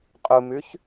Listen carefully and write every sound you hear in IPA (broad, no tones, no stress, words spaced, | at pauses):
qʼumʉç